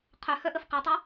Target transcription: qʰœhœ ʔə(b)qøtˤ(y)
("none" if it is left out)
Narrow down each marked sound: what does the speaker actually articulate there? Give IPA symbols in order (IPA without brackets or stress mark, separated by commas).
f, y